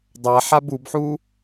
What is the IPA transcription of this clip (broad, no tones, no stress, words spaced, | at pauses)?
dˤaħab ubħu